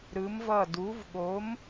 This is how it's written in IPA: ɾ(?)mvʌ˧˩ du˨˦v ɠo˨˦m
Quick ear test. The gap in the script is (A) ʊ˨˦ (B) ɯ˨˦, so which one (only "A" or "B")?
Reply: B